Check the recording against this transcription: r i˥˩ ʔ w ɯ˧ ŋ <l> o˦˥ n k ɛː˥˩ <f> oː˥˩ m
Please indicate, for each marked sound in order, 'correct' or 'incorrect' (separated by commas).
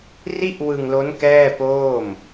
correct, incorrect